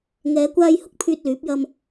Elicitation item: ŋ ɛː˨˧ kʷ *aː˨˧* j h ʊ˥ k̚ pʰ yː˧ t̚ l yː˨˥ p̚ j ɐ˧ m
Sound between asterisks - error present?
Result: yes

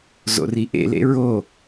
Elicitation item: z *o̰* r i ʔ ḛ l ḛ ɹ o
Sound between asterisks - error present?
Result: no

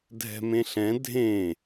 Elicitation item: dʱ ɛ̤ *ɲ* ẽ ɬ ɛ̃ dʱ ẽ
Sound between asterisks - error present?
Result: yes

